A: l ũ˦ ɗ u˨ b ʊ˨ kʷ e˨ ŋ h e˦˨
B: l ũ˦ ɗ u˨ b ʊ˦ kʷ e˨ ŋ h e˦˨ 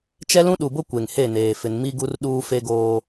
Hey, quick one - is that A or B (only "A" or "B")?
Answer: B